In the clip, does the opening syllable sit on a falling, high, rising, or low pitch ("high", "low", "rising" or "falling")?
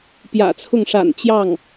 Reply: low